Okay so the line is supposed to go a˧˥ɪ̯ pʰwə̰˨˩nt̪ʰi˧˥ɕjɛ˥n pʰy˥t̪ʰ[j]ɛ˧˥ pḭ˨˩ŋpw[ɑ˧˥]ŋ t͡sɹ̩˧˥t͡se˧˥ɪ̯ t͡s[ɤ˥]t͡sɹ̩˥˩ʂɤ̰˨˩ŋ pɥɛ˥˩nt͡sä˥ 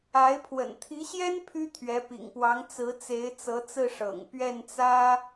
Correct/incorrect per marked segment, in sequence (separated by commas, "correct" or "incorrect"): incorrect, correct, incorrect